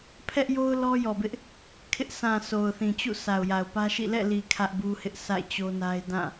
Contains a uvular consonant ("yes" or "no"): no